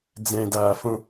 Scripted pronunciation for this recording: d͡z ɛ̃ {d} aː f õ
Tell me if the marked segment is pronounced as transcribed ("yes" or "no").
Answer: yes